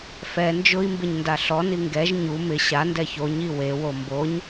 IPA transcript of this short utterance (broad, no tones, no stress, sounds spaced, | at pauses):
f ɛ n d͡ʒ ʊ i̯ m b ɪ ɲ n d a ɬ ɔ n i ŋ ɡ ɛ ʒ ɲ u m ɪ ɕ a n d ɛ ç o ɲ i w e w o m b o ɲ